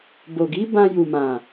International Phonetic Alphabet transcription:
b o˨ ɡ i˨˦ b ã˧ j u˨ m ã˨

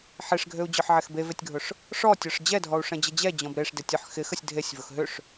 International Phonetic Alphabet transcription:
ħ e ʂ ɡʱ ø u̯ d͡ʑ ɔ ħ ʕ ɛ x b e v e tʲ ɡʱ ʊ ʂ | ʂ ɔ tʲ ɔ ʂ d͡ʑ ɛ dʱ ɔ u̯ ʂ ɛ̃ d͡ʑ ə d͡ʑ ɛ d͡ʑ ɔ̃ b ɾ e ʂ d ɪ tʲ ʊ ħ x ɪ x ə sʲ dʱ e sʲ v ʊ x ɦ ʏ ʂ

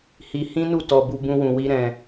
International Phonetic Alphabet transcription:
h i˧ h ĩ˦ n u˦˨ t ɔ˨ b u˧ b ũ˦ w ũ˧ w i˦ ɾ ɛ̃˧

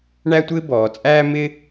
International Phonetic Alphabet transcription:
ɳ æ˥ tʷ ɪː˥ b ɔː˩˧ t͡sʼ æː˥ m ɪ˥

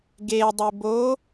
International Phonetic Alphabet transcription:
ɡ e dˤ e b o

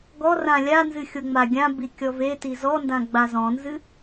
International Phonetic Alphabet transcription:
ɡ ɔ r ã lʲ a n z ɨ xʲ o ŋ͡m a ɡʲ ã b i kʲ ɔ v e t i z ɔ n d ã ɡ͡b a z ɔ̃ n z ɨ

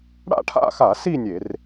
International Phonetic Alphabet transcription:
ɽ a̰˥˧ ʈʰ a̰˥˧ x a˧˩˧ s i˥˧ nʲ e˧˩˧ r

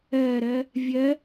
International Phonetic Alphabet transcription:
ɛ ɾ ɛ | vʲ ɛ

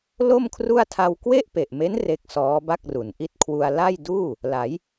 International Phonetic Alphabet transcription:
l o˥˩ m kʰ r u˥˩ a̯ tʰ a˧ w k w e˥˩ ʔ p e˨˩ ʔ m e˦˥ n r e˦˥ k̚ s ɔː˦˥ b a˥˩ k̚ r u˩˦ n ʔ i˦˥ t̚ kʰ w u˧ a̯ l a˥˩ j d uː˥˩ | l a˩˦ j

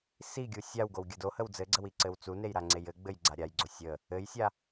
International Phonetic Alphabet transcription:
s i ɡʲ u sʲ a w ɡ o w ɡʲ ə d o h ə w d͡z ɘ ɡ͡ǀ ə w i ǀ ɘ w t͡s u n e j ɾ a ŋ͡ǀ e j ɘ ɡ͡b ɘ j ɡ͡ǀ a ɾʲ a j ɡ͡ǀ o sʲ ə | ɘ j sʲ a

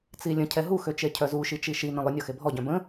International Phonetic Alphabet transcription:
t͡s i lʲ ə̃ cʰ ɛ ɦ u x ø t͡ʃ e cʰ œ z u ʃ i t͡ʃ i ʃ i n ə̃ lˠ ʊ nʲ ɔ x e bʱ ɔ ɟ œ̃ b ə̃

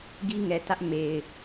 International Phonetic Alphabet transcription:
ɡ i˦ ŋ ɛ˨ t ä˦ ʔ m e˨ ɪ̯

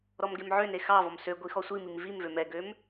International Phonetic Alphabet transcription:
ɾ ɔ m ɡ e m ʕ ø n e x ɑ v ɔ m s ø ɡʷ i x ɔ sʷ i m i m v i m v ø m ɛ ɡ ø m

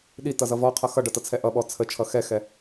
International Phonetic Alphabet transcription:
ɗ i t ʌ z ʌ v ɔ qʰ ʌ x ʌ ɖ ʌ t ʌ t͡sʰ ɛ ʔ ʌ ɓ ɔ t͡sʰ ə t͡ʃʰ ʌ x ɛ x ɛ

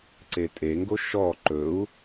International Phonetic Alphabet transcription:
ǀ e tʼ e ŋ ɡ o ʃ ɔ ǃ ɵ u̯

